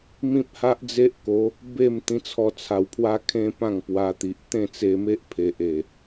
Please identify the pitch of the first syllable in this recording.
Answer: high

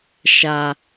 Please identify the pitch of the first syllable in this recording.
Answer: high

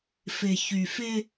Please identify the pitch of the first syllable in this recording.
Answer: low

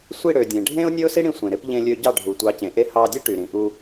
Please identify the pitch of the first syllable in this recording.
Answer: falling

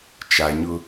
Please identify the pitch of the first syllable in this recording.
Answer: low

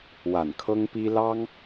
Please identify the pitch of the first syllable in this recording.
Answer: low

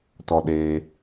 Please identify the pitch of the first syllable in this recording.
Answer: low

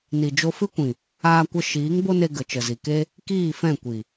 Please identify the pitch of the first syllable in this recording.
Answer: low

